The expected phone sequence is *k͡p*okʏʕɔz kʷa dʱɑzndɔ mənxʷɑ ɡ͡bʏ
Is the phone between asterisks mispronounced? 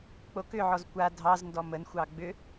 no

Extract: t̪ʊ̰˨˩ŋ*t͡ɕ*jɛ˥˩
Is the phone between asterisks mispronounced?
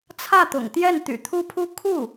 yes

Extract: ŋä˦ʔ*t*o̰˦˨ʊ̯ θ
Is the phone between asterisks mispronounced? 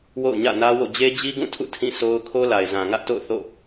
no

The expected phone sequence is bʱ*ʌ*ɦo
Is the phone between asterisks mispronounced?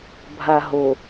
yes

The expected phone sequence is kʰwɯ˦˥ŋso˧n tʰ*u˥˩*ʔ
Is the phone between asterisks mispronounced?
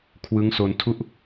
no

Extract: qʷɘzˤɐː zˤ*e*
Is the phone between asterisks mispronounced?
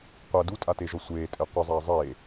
yes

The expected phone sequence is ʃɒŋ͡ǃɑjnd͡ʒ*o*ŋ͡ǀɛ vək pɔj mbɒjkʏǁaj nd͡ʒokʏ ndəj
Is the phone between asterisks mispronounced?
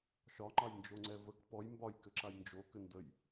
no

